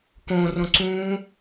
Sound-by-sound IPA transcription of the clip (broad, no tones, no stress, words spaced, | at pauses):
kõrõǀũː